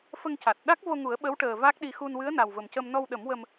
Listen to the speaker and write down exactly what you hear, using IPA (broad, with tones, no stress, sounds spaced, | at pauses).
f ə˧ ŋ c a˨˩ t̚ ɗ a˦˥ k̚ v o˧ ŋ u˨˩˦ ə̯ ɓ ə˧˥ w ʈ əː˨˩ v a˦˥ k̚ ɗ i˧ x u˧ n w ɨ˧˥ ə̯ n a˨˩ w v ə˨˩ m c ə˧ m n ɔ˧ w ɗ ə˨˩˦ m w ə˧ m